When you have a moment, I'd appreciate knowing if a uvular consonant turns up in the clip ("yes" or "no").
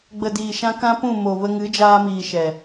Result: no